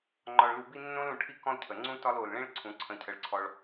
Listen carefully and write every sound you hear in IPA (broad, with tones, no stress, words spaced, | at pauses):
ŋ͡ǃɒ˨ɭlu˨bi˦ nːõ˦lũ˨ʈʰi˦ kɔ̃˦lcʰə˨ ŋ͡ǀũ˦tɒ˦l o˨lɭĩ˦ɭǀʰũ˨ ǀʰə̃˦˨cʰə˦ɭǀʰɔ˦ɭ